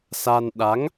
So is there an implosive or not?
yes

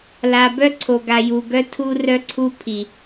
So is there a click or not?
yes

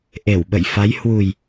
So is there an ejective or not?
no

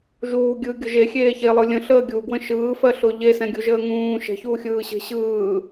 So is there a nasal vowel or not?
yes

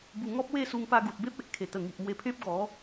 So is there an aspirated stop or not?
yes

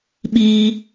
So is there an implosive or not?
yes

